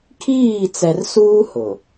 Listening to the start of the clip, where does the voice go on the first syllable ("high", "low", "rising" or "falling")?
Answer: falling